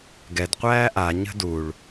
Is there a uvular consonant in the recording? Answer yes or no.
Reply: yes